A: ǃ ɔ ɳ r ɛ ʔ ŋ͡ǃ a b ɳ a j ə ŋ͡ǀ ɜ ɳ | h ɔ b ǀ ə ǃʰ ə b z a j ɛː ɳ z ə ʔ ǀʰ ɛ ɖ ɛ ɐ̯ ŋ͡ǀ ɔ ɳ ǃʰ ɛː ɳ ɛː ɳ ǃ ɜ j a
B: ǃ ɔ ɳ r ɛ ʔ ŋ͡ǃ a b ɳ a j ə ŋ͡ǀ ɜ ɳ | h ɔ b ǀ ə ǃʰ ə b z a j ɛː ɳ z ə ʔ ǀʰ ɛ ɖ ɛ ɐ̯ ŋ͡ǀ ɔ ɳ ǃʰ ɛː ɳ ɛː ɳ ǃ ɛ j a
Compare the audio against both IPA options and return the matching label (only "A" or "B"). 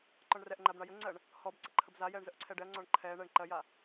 A